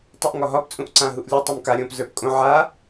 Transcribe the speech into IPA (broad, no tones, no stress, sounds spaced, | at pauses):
tˤ u ʔ ŋ ɒ ɦ ɒ p t͡sʼ ũ ʔ ǀ ã ɦ u ʔ lʲ o tˤ u m k a ɾʲ õ p z ə˞ p kʼ õ ʕ a